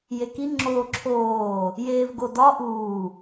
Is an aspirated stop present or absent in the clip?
present